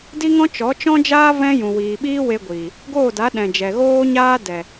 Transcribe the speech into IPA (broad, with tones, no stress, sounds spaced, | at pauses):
d i˦ ŋ ɔ̃˦ t͡ʃ ɔ˨˦ t͡ʃ ɔ̃˦ d͡ʒ aː˦ v ɛ̃˦ j ũ˨ w iː˨ ɓ iː˦ w e˧ ɡʷ iː˨ | ɡ oː˦˨ d a˨˦ ɗ ɛ̃˨ d͡ʒ ɛ˨ ɣ oː˦ ɲ aː˦ d ɛ˨